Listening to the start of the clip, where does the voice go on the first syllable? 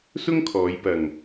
high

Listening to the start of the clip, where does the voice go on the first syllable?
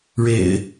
low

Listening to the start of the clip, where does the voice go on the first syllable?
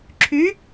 rising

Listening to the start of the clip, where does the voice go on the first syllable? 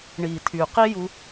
low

